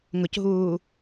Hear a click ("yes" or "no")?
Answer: no